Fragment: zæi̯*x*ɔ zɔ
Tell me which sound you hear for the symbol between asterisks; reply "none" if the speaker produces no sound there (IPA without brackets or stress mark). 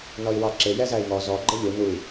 ŋ